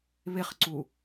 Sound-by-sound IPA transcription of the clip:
β ɪ χ ǀ u

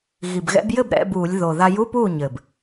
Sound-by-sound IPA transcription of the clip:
ɣ i˨˩ b ɣ ɛ̰˧ b j ɘ˥˩ b ɾ ɛ̰˧˥˧ b uː˧˩˧ lʲ ð o˨˩ ð a˧ j u˧˥˧ p uː˥˩ ɲ ɘ˨˩ b

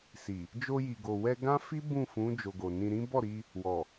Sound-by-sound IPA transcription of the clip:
s i˨ | d͡ʒ o˧ j i˨ ɡ o˨ w ɛ˧ ɡ ã˦ f i˦ b ũ˦˨ f ũ˨˦ d͡ʒ o˧ ɡ o˨ n ĩ˧ ɾ ĩ˦ b ɔ˦˨ ɾ i˧ | w ɔ˨

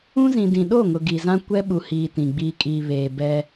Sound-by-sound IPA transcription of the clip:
ũ˦ z ĩ˨ d ĩ˨ ɗ o˦˨ ŋ ʊ˨ ɡ i˨ z ã˦ kʷ ɛ˦ ɓ u˨ h iː˨ t ĩ˨ ɡ͡b i˨ kʼ i˨ β eː˨ b ɛ˦

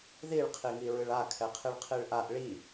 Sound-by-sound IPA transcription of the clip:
ð i ɭ qʰ i ŋ i ɹ ɨ ɭ a kʰ ɛ qʰ i ɭ qʰ i ɭ ʔ a ʔ ɭ i

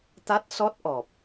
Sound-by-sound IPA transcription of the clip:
t̪ a˦˥ t̚ s ɔ˦˥ t̚ ʔ ɔ˨˩ p̚

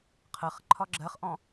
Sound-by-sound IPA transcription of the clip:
qʰ ɜ χ ǃʰ ɒ ɡ͡ǁ ɜ χ ʔ ɔ̃

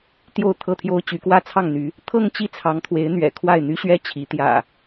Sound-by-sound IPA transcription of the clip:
t̪ j o˥˨ ʊ̯ t̪ʰ ɤ˥˨ t̪ʰ j o˦ ʊ̯ t͡ɕ y˨˦ k w ä˥˨ t͡sʰ ɑ˥˨ ŋ n̪ y˨˦ | t̪ʰ ɤ˥˨ ŋ t͡ɕ i˥˨ t͡sʰ ɑ˨˦ ŋ t̪ʰ w e˨˦ ɪ̯ n̪ ɥ ɛ̰˨˩ kʰ w a˥˨ ɪ̯ n̪ y˦ ɕ ɥ ɛ˦ t͡ɕʰ i˨˦ t̪ j ä̰˨˩

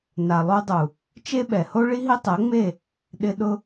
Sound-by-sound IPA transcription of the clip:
n a˨ lˠ u˧ dˤ u˨ | t͡ʃ e˦ ɓ ɛ˨ h o˦ ɭ i˦ ɦ i˦ tˤ ɛ˨˦ ŋ͡m e˦˨ | ɗ ɪ˧ ɗ ʊ˦

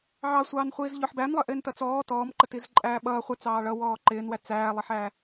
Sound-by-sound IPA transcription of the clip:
ʕ ɑ sʷ ɑː n χʷ iː z ʎ ɔ ħ b æ n lˠ ə ʔ ɪː n t ʌ t͡s ɔː t ɔː m ǃ ə t i z ǃʼ æː ɓ ʌː χʷ ə t͡s ɑː ɭ ʌ w ɔː ǃ ɪː n w æ t͡s æː lˠ ɪ ħ æ

